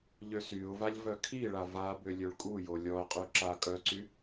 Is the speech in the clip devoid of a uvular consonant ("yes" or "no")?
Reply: no